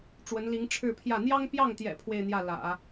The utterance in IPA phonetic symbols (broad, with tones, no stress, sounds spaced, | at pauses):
ʈ͡ʂ w ə˧˥ n l i˧˥ ŋ ʈ͡ʂʰ ɻ̩˥˧ pʰ j ä˥˩ n̪ j ɑ˥ ŋ p j ɑ˥˩ ŋ t̪ j ɛ̰˨˩ pʰ w e˥˧ ɪ̯ n̪ j ä˥˩ l ä̰˨˩˦